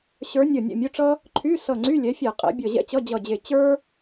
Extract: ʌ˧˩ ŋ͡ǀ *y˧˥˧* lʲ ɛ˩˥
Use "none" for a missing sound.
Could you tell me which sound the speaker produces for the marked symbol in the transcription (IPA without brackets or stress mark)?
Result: y˧˥˧